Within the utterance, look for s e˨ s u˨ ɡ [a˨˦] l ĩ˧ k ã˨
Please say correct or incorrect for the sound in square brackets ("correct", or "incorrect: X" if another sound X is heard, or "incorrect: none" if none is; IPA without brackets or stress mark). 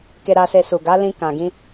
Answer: correct